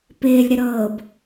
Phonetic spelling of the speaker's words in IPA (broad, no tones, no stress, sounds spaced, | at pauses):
p ɪː lʲ ɾ ɪ ɾ ɤː b